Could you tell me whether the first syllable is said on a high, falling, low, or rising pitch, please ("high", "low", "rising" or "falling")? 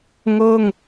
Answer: falling